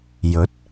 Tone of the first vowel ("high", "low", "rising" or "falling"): rising